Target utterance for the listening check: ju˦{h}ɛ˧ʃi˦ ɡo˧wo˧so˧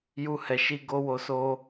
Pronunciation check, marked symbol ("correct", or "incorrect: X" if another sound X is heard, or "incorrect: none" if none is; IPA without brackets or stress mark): correct